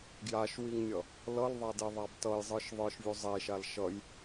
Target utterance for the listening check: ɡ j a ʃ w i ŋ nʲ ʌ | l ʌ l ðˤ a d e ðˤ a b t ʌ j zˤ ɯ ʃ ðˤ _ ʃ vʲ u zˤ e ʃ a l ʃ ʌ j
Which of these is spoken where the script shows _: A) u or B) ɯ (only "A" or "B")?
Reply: B